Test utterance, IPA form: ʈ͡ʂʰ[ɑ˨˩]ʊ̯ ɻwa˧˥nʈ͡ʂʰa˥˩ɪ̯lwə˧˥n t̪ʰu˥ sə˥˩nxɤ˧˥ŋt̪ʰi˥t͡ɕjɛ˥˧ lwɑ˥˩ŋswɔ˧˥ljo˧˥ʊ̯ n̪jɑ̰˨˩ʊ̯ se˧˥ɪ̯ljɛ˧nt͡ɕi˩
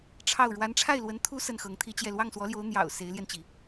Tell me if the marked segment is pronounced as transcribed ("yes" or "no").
no